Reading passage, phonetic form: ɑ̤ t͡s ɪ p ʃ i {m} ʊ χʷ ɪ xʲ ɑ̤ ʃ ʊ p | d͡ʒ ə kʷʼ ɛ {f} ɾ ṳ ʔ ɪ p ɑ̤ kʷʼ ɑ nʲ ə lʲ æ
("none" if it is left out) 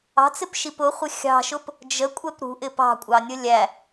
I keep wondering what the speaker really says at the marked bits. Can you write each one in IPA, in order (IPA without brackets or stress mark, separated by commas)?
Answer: p, p